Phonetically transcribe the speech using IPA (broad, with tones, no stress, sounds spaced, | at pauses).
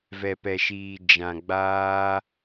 v ɛ˨ p ɛ˨ ʃ iː˨ d͡ʒ ã˨ ɡ͡b aː˧